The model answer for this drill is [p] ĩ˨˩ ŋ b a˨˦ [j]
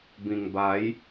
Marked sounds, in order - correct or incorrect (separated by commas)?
incorrect, correct